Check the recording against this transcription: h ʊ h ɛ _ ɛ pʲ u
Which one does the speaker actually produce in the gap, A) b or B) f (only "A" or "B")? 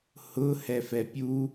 B